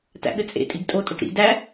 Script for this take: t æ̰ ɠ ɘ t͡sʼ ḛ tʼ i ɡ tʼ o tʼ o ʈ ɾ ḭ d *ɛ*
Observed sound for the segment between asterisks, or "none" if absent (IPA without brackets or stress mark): æ